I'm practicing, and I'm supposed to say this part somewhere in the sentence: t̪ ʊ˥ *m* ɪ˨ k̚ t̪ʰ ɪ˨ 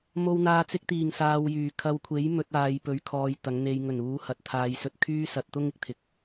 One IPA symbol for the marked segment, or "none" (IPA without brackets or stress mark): ŋ